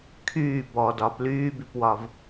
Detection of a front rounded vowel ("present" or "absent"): present